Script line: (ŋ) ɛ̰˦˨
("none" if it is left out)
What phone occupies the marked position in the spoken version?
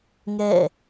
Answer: ŋ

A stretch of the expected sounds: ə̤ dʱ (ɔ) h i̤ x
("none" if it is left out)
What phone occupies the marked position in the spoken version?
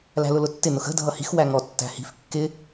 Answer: ʌ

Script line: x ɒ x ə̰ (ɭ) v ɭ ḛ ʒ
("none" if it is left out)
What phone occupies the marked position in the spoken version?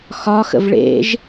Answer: none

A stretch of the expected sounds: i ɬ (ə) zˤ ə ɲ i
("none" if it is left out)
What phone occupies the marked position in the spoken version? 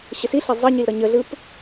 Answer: ʌ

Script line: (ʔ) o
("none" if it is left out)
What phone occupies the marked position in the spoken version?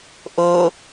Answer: ʔ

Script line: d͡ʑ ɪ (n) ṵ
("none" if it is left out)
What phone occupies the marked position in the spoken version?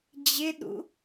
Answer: ɗ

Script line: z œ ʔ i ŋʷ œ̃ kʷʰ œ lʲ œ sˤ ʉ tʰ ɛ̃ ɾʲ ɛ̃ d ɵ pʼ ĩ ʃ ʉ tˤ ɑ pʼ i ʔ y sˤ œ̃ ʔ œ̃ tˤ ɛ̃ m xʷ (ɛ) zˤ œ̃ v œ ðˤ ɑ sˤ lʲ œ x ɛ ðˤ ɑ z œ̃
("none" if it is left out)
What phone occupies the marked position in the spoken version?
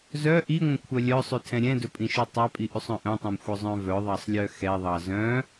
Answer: œ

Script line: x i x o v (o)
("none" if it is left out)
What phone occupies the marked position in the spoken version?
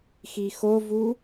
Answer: u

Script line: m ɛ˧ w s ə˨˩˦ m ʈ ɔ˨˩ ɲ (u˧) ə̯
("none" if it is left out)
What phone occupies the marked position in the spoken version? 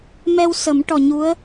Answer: u˧˥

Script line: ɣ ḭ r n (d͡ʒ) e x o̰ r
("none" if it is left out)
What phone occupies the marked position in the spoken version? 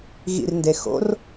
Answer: d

